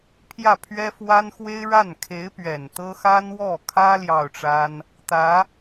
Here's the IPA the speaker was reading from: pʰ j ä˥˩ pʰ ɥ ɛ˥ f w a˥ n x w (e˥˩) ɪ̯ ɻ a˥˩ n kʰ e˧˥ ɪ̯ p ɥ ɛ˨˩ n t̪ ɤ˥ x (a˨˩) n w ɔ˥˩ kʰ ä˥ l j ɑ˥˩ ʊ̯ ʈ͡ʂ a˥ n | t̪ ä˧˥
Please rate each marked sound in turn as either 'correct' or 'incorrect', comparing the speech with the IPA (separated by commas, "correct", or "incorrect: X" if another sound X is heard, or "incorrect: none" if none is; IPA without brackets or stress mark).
incorrect: e˥, incorrect: a˥